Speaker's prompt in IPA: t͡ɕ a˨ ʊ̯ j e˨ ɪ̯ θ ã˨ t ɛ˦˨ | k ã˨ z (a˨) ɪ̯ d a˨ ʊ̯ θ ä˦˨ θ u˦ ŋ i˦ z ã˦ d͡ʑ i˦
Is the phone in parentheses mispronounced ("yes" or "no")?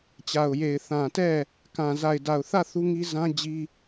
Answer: no